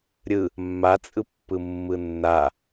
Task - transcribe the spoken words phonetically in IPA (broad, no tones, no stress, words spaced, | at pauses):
ɾʲɯ | mːa t͡sʼɯpːɯmːɯnːa